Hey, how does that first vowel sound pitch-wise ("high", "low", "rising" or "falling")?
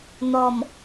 low